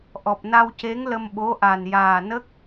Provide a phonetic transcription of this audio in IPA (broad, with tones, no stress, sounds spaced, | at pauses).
ʔ ɔ˨˩ p̚ n a˧ w c e˧˥ ŋ l ə˧ m ɓ o˧˥ ʔ a˨˩ n j aː˨˩ n ə˦˥ k̚